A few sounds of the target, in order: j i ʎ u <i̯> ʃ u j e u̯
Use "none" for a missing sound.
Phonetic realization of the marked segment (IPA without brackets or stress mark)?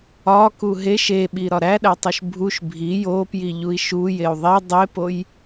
i̯